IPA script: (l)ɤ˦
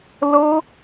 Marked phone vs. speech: correct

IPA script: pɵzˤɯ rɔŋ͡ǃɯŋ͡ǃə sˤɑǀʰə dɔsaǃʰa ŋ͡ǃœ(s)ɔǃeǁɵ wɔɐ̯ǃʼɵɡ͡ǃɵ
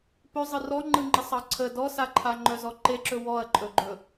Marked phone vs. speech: incorrect: z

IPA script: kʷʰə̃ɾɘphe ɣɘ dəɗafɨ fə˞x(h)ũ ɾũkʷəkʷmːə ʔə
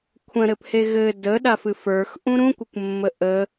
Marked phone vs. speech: incorrect: ʔ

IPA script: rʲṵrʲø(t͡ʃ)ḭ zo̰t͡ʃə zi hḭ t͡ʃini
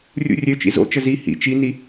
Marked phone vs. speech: correct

